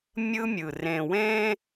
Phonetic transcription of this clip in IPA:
mʲ ɯ˦ mʲ ɯ˨ r ẽ˨ w ẽ˦

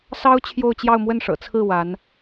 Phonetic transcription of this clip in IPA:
s ɑ˥ ʊ̯ t͡ɕʰ j o˥˧ ʊ̯ t͡ɕ j ɑ˥˧ ʊ̯ m w ə˥˩ n ʂ ɤ̰˨˩ t͡sʰ ɹ̩˥˩ w a˧˥ n

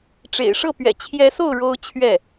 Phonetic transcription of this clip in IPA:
ʈ͡ʂ ḛ˨˩ ɪ̯ ʂ ɤ˥˩ p ɥ ɛ̰˨˩ t͡ɕʰ j ɛ˧˥ s o˥˩ ʊ̯ ɻ o˥ ʊ̯ t͡ɕʰ ɥ ɛ˥˩

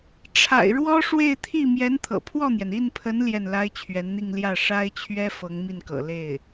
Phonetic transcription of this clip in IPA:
ʈ͡ʂʰ a̰˨˩ ɪ̯ ɻ w ɔ˥ ʂ w e˥˧ ɪ̯ t̪ʰ i˥˩ m j ɛ˧˥ n t̪ʰ ɤ̰˨˩ pʰ w ɔ˥˩ n̪ j ɛ˩ n i˥˩ n pʰ ə˧˥ n l j ɛ˥˩ n l a˥ ɪ̯ t͡ɕʰ ɥ ɛ˧˥ n n̪ i˥˧ ŋ l j ä˥˩ ʂ a˥ ɪ̯ t͡ɕʰ ɥ ɛ˥ f ɤ˧˥ ŋ m i˥˩ n k ɤ̰˨˩ l e˥˩ ɪ̯

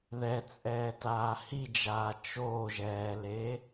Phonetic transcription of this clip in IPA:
ð ɛ t͡sʼ ɛː t aː h i d͡ʒ aː t͡ʃ oː ʒ ɛː l e

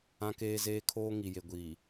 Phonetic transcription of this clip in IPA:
ã˦ k eː˦ z eː˦ kʰ oː˦ ŋ i˨ j e˨ ɡʷ iː˨

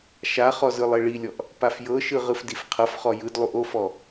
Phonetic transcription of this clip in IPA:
ʃ a χ ɔ z ɯ lˠ e ɭ i lʲ ɔ ʔ | p a f j ɤ ʃ ɯ ʁ ɯ f d i f qʰ ɤ f χ ɔ j ɯ d lˠ u ʔ o f ɔ

